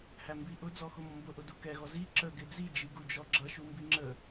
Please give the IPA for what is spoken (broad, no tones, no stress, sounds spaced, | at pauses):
h æ m b i ʔ ʊ d͡z ɔ x ʊ m ɔ m b ʊ ʔ ʊ d u k ɛ ɣ ɔ z i ǁ ə ɡ ɪ d͡z i d͡ʒ i ɡ u d͡ʒ ɔ ɡ͡ǁ ʌ ʃ u m b i ŋ͡ǁ ə